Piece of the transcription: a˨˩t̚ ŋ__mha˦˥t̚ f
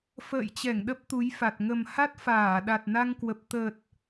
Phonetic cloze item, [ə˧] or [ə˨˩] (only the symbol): ə˨˩